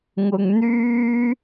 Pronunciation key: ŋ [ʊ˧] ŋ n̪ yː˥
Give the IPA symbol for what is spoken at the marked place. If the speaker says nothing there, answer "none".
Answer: ʊ˧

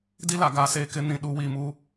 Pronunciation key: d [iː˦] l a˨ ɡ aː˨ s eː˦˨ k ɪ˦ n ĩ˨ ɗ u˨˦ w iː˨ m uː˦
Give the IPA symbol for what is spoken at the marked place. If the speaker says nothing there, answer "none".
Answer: i˦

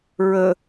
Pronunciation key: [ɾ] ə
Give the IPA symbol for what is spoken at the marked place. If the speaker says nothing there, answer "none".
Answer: ɹ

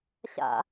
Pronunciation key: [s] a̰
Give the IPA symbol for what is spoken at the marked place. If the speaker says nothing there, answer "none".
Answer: ɕ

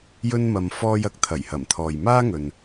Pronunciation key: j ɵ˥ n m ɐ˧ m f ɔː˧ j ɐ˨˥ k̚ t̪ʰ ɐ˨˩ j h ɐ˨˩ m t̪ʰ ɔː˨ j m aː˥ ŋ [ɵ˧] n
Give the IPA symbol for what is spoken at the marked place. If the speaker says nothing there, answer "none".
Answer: ɵ˨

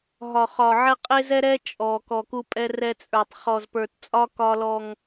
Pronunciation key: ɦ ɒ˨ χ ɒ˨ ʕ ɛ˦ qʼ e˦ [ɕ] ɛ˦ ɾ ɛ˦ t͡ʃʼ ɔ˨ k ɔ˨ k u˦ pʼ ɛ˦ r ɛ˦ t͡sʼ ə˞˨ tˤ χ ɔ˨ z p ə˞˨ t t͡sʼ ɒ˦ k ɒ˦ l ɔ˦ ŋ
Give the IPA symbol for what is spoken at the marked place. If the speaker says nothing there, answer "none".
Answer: z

